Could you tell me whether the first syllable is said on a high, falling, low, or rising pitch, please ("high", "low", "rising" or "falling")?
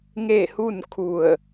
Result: falling